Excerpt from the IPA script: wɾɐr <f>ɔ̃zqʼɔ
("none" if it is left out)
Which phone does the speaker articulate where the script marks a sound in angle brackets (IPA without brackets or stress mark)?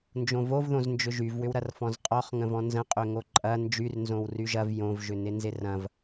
f